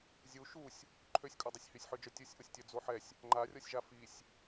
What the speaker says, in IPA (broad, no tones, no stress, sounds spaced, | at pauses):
zʲ u ʃ u sʲ | ǃʰ ø sʲ kʼ u dˤ i sʲ h y sʲ ħ ø d͡ʒ œ tʲ u sʲ ʔ o sʲ tʲ œ d͡z o ħ ɛ sʲ | ŋ͡ǃ a rʲ ɔ sʲ ʒ a f i sʲ